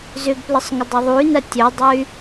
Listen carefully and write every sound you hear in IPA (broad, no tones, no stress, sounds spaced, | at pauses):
z ʏ ɡ p l ə sˤ ŋ ʏ dˤ a ðˤ u y̯ n ɐ tʲ œ dˤ œ y̯